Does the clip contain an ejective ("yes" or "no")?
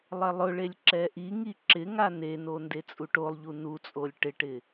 yes